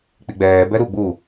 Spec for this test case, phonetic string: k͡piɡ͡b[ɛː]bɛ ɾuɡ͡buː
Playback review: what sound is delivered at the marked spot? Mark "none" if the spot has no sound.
ɛː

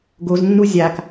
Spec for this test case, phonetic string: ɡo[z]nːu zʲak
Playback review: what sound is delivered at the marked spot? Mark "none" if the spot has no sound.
z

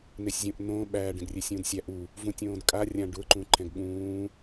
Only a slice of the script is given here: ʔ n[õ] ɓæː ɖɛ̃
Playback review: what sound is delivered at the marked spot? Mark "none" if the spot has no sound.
õː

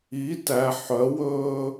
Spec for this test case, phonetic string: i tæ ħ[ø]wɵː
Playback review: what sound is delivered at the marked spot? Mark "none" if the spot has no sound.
œ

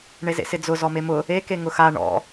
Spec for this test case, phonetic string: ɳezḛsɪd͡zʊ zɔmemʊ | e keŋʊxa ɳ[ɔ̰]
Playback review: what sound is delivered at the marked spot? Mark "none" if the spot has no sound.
ɔ̰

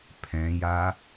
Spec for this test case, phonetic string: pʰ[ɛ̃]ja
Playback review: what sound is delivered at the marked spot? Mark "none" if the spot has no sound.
ɛ̃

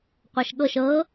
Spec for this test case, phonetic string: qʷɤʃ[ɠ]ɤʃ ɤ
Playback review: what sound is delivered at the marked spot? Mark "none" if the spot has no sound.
ɠ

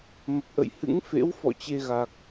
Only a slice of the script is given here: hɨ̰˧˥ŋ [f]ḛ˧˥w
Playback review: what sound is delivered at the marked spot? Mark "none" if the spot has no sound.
f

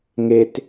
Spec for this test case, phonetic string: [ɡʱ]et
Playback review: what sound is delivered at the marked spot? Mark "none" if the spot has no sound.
ŋ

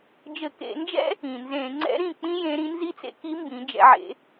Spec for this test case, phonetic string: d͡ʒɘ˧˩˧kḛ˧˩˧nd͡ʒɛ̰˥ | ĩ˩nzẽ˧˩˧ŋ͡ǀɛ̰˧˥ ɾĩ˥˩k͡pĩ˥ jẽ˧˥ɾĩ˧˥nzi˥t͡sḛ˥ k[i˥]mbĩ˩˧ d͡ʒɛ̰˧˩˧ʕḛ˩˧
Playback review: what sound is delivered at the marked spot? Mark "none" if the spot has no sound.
i˧˥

